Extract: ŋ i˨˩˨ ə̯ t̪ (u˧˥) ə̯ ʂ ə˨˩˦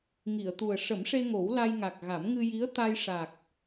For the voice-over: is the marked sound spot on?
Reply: no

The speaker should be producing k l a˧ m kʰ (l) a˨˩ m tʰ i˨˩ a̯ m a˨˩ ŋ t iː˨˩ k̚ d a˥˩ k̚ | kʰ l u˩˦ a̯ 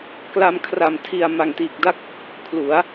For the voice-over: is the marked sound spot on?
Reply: no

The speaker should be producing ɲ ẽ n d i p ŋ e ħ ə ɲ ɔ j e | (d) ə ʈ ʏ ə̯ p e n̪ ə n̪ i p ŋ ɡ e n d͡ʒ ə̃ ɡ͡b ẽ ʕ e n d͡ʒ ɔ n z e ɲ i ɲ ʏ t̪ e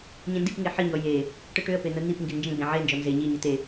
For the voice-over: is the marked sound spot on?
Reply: no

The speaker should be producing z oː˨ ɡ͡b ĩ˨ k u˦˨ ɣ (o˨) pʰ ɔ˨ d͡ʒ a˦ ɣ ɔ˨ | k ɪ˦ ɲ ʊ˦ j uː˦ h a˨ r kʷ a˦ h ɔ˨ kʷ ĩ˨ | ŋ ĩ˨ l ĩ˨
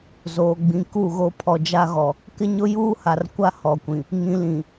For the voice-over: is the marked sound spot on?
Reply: no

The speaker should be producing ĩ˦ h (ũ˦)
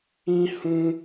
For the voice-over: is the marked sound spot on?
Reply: yes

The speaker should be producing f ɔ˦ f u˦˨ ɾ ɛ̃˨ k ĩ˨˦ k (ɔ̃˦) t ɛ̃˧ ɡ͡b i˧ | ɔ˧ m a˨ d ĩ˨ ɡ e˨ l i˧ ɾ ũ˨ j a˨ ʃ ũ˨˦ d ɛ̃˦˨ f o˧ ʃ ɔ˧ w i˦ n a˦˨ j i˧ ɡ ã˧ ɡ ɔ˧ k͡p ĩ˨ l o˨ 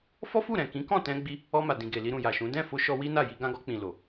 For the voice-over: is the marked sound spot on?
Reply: no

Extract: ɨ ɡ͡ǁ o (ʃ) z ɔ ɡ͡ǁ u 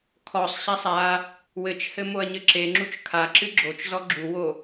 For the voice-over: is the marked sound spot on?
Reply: no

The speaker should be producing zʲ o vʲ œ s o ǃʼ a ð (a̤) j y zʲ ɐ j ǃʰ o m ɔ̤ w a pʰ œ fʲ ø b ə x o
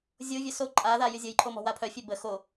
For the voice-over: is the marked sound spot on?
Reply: no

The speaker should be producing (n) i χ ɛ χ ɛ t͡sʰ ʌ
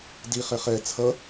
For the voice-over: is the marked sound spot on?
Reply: no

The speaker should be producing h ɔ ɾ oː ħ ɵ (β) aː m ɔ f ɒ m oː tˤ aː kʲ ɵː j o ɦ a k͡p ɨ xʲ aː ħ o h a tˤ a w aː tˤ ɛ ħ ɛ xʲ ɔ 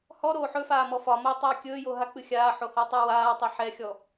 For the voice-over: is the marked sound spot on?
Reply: no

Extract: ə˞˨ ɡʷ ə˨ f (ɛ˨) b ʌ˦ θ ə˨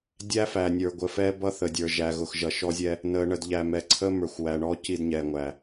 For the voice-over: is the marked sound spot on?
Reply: no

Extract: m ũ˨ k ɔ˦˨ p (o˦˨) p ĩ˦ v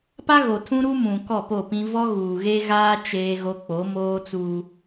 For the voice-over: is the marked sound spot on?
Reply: yes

